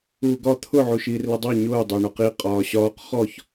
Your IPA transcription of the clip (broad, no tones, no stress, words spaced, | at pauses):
uːɡɒ t̪ʰʊ ʕuʃiːrlədˤɑ ɲʊː dˤæɳɔqi qʼɒːɕɒːq χɔç